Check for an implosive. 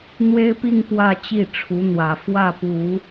absent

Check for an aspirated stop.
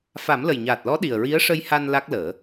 absent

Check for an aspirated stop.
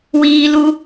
absent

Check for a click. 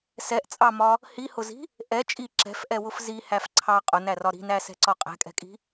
present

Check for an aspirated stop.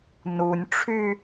present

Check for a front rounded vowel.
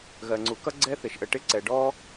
absent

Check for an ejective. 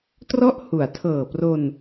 absent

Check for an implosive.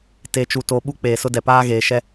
present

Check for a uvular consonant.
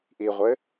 present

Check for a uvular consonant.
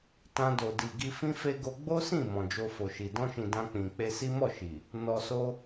absent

